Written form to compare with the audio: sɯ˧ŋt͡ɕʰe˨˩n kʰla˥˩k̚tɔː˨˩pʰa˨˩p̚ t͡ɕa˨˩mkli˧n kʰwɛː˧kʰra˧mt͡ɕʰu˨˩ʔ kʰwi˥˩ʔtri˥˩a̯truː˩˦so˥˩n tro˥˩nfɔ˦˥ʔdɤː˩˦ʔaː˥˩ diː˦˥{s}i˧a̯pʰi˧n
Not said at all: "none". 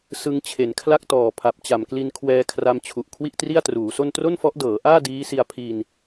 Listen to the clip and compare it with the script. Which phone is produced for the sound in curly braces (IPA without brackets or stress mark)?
s